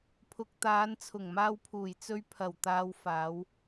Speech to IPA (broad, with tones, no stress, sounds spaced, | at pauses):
pʰ ʊ˨ k̚ t̪ aː˨˧ n t͡sʰ ʊ˨˩ ŋ m aː˧ w pʰ uː˨˩ j t͡s ɵ˧ ɥ pʰ ɐ˨˩ w t̪ aː˨ w f aː˨˧ w